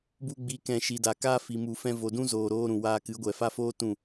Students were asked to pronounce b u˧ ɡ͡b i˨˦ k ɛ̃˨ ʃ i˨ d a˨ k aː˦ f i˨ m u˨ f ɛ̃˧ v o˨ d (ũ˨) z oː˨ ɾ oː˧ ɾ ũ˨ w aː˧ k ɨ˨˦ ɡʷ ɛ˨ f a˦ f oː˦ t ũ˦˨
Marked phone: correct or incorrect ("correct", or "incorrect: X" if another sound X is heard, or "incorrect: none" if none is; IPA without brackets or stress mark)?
incorrect: ũ˦